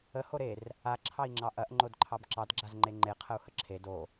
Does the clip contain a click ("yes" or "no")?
yes